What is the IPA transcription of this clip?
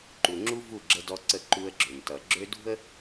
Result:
ǃ u˨ ŋ͡ǁ u˦ v u˦˨ ɡ͡ǁ ə˦ d ɔ˦ ǀ ə˦˨ ǃ u˦ ə̯ ɡ͡ǁ ø˨ m t ʌ˨ ɡ͡ǁ ø˦ d ṳ˦ ə̯

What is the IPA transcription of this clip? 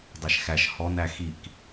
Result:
dˤ ɛ ʃ x æ ʃ h ɔ n æ x i k

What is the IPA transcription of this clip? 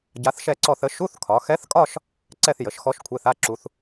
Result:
ɟ a˧˥ θ ʃ ɛ˥˧ ǀ ɔ˥˧ θ ə˧˥ ʃ u˧˥˧ θ kʰ ɒ˩˧ x ɛ˧˥ θ kʼ ɒ˥˧ ʃ | ǀ ɛ˥˧ θ j ə˩˧ ʃ x ɔ˧˥ ʃ kʷʰ e˧˥˧ θ a˧˥˧ ǁ u˩˧ θ

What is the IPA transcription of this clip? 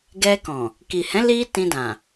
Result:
ɡ ɛ˧ k ɔ̃˨ | k i˨ h ɛ̃˨˦ l i˦ t ĩ˧ d ã˨

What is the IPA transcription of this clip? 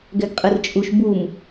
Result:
ɡ ɛ ɡ qʼ ɯ r t͡ʃʼ u ʃ b u m

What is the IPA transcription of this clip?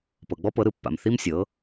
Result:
p ɤ˨ ɡ͡b ɔ˦ p ɤ˨˦ ɾ ɯ˧ pː a̰˨ m θ i˦ m sʲ ɤ˨˦

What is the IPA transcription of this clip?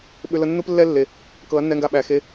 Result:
ɓ ʏ˧ l ə˧ nː u˦ p lː ɛ˦ lː e˨ | k ɤ˨˦ ɐ̯ nː ɛ˧ ŋ ɡ a˧ ɓ æ˨ x e˧

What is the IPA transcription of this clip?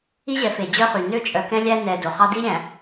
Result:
i˦ ʑ ɛ˨ f e˨ d͡ʑ œ˦ χ y˨ n ø˦ t͡ʃʼ œ˨ k ɛ̃˦ lʲ æ˦ n ɛ˨ d o˨ χ ɑ˦ d i˦ ɾʲ æ̃˨

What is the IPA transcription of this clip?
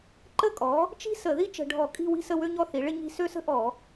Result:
ǃ ə˥˨ kʼ ɔ˩˥ | t͡ʃ i̤˥ s ə˧˩˧ ð i˥ t͡ʃ ə̤˧˩˧ ɖʱ ɔ˧˩˧ kʼ i̤˥˨ w i̤˥ s ə˥˨ w ø˥ ɲ ɔ˥˨ θ i˩˥ ɭ ɪ˥ ɲ i̤˥˨ s ø˥˨ s ə̤˥ ʔ ɔ˧˩˧

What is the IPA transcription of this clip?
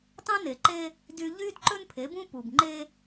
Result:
t ɑ̃˦ n e˨ ǃ e˦ | d y˦ ʎ y˦ d ǃ ɵ˦ n pʰ e˨˦ b ũ˦ p u˨ b ŋ͡ǃ e˦

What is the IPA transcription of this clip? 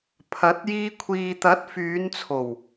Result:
pʰ ɐ˨˥ t̚ j iː˧ kʷʰ iː˨ t̪ ɐ˨˥ t̚ f yː˨˧ n t͡sʰ o˨˩ w

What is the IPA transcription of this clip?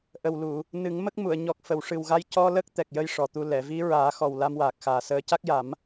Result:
ʔ ə˨˩ w l u˨˩˨ | n ɨ˨˩˦ ŋ m ə˦˥ k̚ m u˨˩˨ ə̯ ɲ ɔ˨˩ k̚ f ə˨˩˨ w ʂ ɨ˨˩ w ɣ a˧˥ j c ɔ˧ l ə˦˥ k̚ t̪ ɛ˨˩ k̚ j ə˧ j ʂ ɔ˨˩ t̪ u˧ l ɛ˨˩˨ v i˧˥ ɹ aː˨˩˦ x ɔ˨˩ w l a˧ m w aː˨˩ k̚ x aː˨˩ s əː˧˥ c a˦˥ k̚ j a˨˩˦ m

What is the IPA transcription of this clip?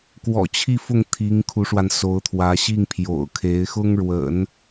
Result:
k w ɔ̰˨˩ t͡ɕʰ i˥˧ f ʊ˥˩ ŋ t̪ʰ i˧˥ ŋ kʰ u˧˥ ʂ w a˧ n s o˧˥ ʊ̯ t̪ʰ w ä˧˥ ɕ i˥˩ ŋ pʰ j o̰˨˩ ʊ̯ kʰ e˧˥ ɪ̯ x ʊ˥ ŋ ɻ w ə̰˨˩˦ n

